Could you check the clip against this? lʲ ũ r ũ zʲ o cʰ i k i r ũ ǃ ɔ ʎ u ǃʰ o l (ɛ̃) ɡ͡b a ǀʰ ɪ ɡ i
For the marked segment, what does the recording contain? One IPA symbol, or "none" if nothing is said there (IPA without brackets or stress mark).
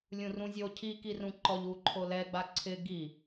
ɛ